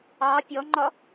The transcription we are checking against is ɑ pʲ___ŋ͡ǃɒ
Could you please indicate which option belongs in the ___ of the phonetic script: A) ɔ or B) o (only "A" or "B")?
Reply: A